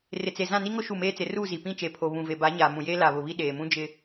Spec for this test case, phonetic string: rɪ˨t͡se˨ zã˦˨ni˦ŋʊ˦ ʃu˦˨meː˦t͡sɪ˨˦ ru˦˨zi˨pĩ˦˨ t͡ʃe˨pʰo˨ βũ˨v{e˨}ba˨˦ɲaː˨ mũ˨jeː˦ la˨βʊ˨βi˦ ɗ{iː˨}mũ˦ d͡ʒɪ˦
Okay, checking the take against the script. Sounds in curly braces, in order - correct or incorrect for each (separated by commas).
correct, incorrect